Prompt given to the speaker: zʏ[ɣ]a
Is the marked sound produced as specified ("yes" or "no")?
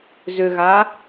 yes